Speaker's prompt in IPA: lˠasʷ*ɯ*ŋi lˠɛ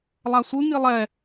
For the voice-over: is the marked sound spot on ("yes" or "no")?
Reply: yes